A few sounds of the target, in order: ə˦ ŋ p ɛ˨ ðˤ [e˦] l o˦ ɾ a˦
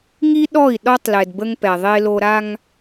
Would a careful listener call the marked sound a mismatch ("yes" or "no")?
no